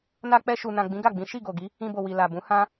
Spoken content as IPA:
na˧k͡pɛ˧ʃu˨nã˨ ɡ͡bĩ˨˦ɡa˦˨ɡ͡bĩ˨˦ ʃi˦˨ɡo˨ɡi˨˦ | ĩ˧bo˨ wi˨ la˨bũ˨˦ hã˦

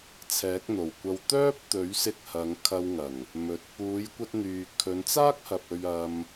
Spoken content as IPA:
t͡sʰɛː˨˥k̚n̪o˨˩wkʷɐ˧w t̪œː˥p̚t̪ɵ˨˥ɥsɪ˧k̚ hɐ˨˧ŋ kʰɐ˧wŋɐ˨˩ŋ | mɵ˨t̚ puː˨˧jkʷɐ˧t̚n̪yː˨ kʰɵ˨˧nt͡saː˥k̚hɐ˨p̚ ɵ˧ɥ ɐ˧m

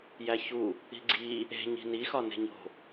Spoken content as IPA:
jæçu | i̤ɡ͡ǀi | e̤ɲi̤ ni xɒne̤ɲo̤

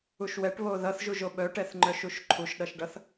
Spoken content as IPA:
uʃwɛʈβo ðʌθʒuʒo ɓœʈɛθŋ͡ǃœ ʃuʃǃʰuʃɗʌʃɖʌθ

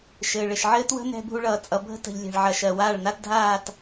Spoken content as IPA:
ʃɘː˨ɭɘ˨ʃ ʕɘː˦twə̤˦nɛ̤˧ bʱu˧ɭʌː˨t͡sʼʌ˨ bʱə̤˦tə̤˨ʎlʲɛ̤˨ɭʕɐ˨ʃ ɜ˨waː˦˨ɭna˦t dʱaː˦˨t

